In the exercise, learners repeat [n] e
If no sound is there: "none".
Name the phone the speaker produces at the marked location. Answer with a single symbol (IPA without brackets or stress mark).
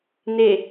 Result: n